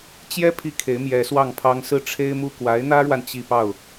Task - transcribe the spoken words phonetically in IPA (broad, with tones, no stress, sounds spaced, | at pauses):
t͡ɕ j ɛ˥ pʰ i˥ kʰ e˧˥ ɪ̯ m j ɛ˧˥ s w ɑ˥˩ ŋ pʰ ɑ˥ ŋ s ɹ̩˥˩ ʈ͡ʂʰ e˥ ɪ̯ m u˥˩ k w a˧˥ ɪ̯ n̪ ä˥ ɻ w a˨ n t͡ɕ i˥˧ p ɑ˥˩ ʊ̯